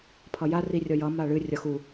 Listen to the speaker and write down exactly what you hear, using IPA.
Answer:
pʰ ʌ j a r i rʲ ʌ j ʌ m a ɭ ɨ rʲ ʌ x u

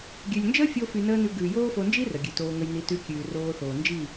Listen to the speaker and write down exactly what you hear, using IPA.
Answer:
ɡʲ ʉ˨ lʲ n d͡ʒ əː˦ fʲ o˧ f y˧ n əː˦ n ʉ˧ ɡ ʉː˨ j oː˦ f o˧ n d͡ʒ i˦ r ə˨ ɡʲ ʉ˨ t oː˧ ŋ ə˧ j n i˨˦ t ʉ˧ kʲ ʉː˨ r oː˧ θ oː˨ n d͡ʒ i˦˨

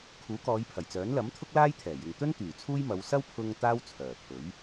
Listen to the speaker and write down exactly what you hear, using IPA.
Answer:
kʰ uː˨˥ k ɔː˨˧ j pʰ ɐ˨˩ j t͡s œː˨˥ n l ɐ˨˥ m t̪ʰ ʊ˥ k̚ l aː˥ j t̪ʰ ɛː˨˩ j ɪ˨ ŋ t̪ ɵ˥ n t̪ yː˨˩ t͡sʰ uː˥ j m ɐ˨˧ w s ɐ˥ w pʰ ʊ˧ ŋ t̪ aː˥ w t͡sʰ œː˨˩ pʰ ɵ˨˥ ɥ

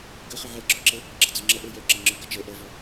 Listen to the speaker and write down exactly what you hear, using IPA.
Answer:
ɡ ɐ χ ə ʕ ɛ ɡ͡ǁ ɒ ǁ ɛ | ɡ͡ǁ ɐ d͡z ɒ ŋ͡ǁ ɐ ʔ ə˞ j œ ǁ ɐ ŋ͡ǁ ə˞ ɡ ɐ t͡ʃ ɛ ʔ ɐ v ɒ

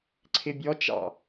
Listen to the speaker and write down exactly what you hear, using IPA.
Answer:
ǀʰ ɪ bʲ ɔ t͡ʃ ɑ̰

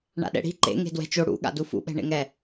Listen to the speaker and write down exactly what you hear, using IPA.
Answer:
ɳ a̰ ɗ ɛ̰ ɽ i̤ ǃ ḛ ŋ e̤ d w ɛ̤ t͡ʃ o ɽ ṵ ɠ a̰ d u f ṵ ɓ ɛ̤ ɳ ḛ ŋ ɛ

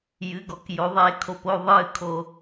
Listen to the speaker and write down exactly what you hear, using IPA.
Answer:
j ɨ˩˧˩ ɡ ɔ˩˧ k j o˩˧ ðˤ e˧˩˧ kʰ o˩ p o˩˧˩ ðˤ ɨː˧˩ kʰ o˧˩˧

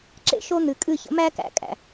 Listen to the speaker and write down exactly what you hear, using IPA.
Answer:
ǁ ḛ˦ ʃ o˦ n̪ ɨ˨ kʼ ɨ˦˨ ç ə̰˨˦ m æ˦ k æ̰˨ kʼ æ̰˨

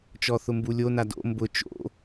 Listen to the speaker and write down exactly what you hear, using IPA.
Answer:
t͡ʃ ɔ θ ʊ m b u lʲ o n a d o̰ m b ʊ t͡ʃ o̰

